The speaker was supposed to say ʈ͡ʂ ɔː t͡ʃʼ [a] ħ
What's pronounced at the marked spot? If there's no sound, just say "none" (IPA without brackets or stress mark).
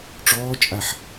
a